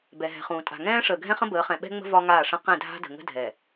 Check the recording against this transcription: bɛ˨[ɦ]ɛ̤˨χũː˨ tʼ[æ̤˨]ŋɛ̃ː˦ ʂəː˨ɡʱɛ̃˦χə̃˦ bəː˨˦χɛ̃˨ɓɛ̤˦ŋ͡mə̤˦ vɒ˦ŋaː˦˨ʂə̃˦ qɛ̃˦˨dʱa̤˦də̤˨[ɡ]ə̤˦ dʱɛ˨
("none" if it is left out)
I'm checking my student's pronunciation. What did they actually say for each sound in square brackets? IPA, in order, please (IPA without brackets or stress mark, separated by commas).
ɦ, a̤˨, ŋ